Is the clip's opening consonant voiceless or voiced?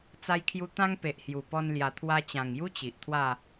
voiceless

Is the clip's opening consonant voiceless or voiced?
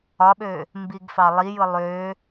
voiced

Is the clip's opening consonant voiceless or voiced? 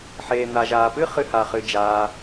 voiceless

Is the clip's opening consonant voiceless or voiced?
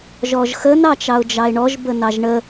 voiced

